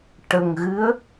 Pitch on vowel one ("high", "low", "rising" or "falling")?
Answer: low